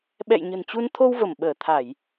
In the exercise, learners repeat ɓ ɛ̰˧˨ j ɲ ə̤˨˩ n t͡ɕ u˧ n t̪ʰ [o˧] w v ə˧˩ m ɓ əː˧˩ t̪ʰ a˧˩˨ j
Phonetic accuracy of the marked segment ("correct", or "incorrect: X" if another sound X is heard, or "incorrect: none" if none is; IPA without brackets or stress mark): correct